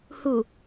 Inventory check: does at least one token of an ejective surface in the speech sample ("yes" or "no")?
no